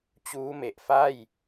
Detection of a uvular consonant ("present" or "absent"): absent